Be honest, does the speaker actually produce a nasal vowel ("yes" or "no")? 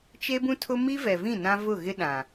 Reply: yes